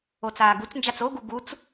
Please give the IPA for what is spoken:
o t͡s aː ɡ u t͡s n d͡ʒ a t͡s o ɡ u ɡ u t͡s

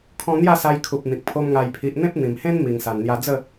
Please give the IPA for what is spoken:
kʰ ɔ̃˧ n̪ j a˥˧ s a˧ j kʰ u˨ p̚ n̪ ĩ˨ k̚ pʰ o˧ m ŋ a˨˩ j pʰ i˨ ʔ n̪ ẽ˦ p̚ n̪ ĩ˨˩ m h ẽ˦ n m i˨˩ ŋ s a˨˩ n n̪ j a˧ d͡z ə˥˧

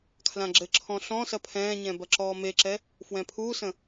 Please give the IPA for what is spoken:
kʰ l ã ɡ͡ǁ ɘ ǁʰ ɔ̃ ɬ ɔ̃ s ɐ pʰ ɛ̃ː ɲ ɛ̃ b ɐ ǁ ɔː m e ǁ ɛ | f w ɛ̃ pʰ uː s ə̃

